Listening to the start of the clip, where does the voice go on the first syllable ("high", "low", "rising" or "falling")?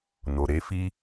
low